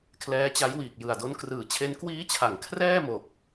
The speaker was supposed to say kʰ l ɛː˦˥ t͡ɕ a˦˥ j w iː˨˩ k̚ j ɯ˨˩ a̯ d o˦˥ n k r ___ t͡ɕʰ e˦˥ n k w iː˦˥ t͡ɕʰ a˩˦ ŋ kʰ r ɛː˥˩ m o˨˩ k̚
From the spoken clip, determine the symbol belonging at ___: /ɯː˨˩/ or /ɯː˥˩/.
ɯː˨˩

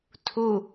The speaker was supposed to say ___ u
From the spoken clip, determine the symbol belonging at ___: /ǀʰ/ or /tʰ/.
tʰ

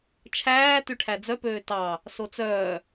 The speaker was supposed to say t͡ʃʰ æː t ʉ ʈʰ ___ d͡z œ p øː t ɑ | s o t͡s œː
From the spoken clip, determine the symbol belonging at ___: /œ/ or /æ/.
æ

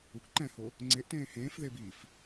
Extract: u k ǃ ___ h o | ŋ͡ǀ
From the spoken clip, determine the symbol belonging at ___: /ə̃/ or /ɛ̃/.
ɛ̃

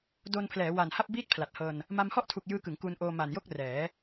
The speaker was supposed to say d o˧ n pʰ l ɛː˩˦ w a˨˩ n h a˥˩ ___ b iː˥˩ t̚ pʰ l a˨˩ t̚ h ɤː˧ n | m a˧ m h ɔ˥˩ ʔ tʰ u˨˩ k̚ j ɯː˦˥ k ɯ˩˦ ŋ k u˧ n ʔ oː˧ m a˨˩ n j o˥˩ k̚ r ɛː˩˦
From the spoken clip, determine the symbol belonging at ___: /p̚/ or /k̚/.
p̚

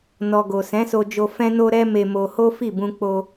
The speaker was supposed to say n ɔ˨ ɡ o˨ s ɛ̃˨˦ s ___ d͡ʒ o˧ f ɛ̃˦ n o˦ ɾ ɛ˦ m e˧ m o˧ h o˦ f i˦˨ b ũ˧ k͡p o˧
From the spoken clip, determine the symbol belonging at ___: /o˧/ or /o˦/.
o˧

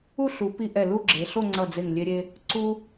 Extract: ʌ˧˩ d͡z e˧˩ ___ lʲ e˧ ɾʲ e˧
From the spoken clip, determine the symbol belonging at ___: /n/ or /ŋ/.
ŋ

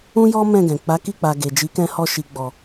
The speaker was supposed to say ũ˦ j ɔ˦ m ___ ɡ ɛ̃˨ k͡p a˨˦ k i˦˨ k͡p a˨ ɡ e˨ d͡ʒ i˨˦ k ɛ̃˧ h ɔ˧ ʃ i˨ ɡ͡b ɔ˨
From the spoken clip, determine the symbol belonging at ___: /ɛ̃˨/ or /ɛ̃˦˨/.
ɛ̃˦˨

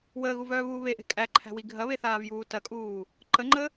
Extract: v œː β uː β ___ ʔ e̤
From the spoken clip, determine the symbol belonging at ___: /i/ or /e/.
e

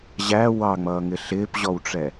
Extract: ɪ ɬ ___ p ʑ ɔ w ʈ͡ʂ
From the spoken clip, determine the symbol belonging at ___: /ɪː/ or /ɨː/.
ɪː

